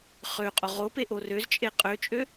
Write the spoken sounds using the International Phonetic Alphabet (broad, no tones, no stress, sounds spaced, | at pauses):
χ ø qʼ o ʁ o p e ʔ o r ø z t͡ʃʼ e qʼ ø t͡ʃʼ ø